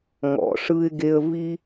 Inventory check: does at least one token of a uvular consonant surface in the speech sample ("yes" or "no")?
no